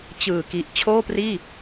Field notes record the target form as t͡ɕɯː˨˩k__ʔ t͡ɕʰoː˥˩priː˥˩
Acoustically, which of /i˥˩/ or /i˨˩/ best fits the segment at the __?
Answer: i˨˩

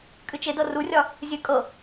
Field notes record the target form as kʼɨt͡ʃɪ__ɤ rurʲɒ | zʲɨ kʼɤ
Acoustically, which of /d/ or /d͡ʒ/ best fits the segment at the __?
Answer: d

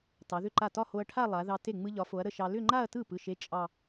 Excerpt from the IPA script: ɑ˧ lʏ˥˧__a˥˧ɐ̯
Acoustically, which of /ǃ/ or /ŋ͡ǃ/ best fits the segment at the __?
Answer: ŋ͡ǃ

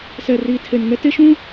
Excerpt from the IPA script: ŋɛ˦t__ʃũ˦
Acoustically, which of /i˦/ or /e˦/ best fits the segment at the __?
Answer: e˦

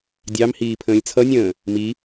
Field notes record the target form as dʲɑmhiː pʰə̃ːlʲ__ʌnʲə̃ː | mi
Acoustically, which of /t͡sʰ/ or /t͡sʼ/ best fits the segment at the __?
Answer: t͡sʰ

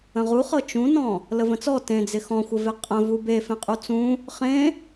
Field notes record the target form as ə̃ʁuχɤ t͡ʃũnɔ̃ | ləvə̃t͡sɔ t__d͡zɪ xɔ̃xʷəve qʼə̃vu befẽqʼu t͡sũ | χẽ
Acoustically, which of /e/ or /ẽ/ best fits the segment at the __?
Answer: ẽ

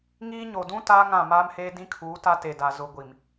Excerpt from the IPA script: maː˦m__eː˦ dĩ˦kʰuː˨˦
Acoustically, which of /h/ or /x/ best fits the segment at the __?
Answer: h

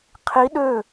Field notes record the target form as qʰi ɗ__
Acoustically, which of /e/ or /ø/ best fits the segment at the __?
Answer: ø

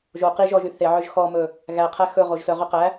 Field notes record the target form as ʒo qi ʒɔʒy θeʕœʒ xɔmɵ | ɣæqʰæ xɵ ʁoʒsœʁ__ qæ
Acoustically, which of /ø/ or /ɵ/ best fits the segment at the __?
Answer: ø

